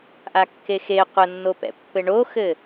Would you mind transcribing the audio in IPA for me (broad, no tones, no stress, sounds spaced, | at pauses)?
ʔ a kː e x e qʷ ə nː o p ɛ̰ pː ɘ ɳ o x ɘ